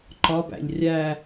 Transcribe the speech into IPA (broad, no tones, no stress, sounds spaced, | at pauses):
ǃ ɒ b æ̰ ʎ rʲ æ